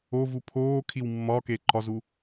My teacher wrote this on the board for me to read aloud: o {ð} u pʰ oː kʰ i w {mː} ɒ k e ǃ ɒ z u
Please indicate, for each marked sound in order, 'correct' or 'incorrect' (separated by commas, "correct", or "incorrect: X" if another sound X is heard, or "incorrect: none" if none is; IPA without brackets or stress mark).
incorrect: v, correct